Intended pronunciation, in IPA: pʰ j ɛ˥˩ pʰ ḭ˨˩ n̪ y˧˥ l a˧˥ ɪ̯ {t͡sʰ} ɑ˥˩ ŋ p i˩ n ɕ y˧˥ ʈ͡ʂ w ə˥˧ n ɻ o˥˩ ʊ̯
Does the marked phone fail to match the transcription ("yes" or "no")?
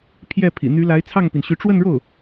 no